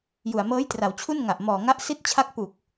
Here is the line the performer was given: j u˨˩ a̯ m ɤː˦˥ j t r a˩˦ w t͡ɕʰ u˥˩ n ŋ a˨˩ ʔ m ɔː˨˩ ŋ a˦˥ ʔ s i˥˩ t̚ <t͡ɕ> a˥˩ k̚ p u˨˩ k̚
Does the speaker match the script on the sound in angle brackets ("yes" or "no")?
no